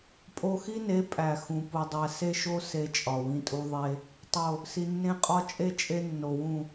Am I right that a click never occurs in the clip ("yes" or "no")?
yes